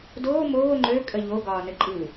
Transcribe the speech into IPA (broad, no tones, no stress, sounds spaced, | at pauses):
d oː m oː ŋ͡ǃ ø kʼ ə ʎ o ɡ ɒː n ə ǃʼ ɯ